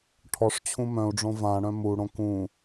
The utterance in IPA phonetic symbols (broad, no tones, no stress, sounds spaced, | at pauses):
ʈʰ ɔ ʂ t͡ɕʰ ũ m œ̃ u̯ ɖ͡ʐ õ v ã ɽ œ̃ m u ɽ õ k ũ